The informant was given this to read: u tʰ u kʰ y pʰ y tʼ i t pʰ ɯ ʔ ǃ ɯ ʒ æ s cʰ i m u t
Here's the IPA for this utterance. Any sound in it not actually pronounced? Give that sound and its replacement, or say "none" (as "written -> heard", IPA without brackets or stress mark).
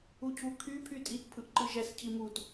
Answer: tʰ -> cʰ